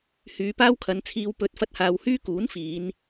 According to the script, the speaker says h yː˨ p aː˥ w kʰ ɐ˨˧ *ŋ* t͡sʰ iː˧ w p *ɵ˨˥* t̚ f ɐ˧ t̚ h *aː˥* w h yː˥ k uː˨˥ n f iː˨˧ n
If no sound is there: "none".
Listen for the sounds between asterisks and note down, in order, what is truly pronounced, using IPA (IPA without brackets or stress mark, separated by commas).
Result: n, ɵ˨˥, aː˨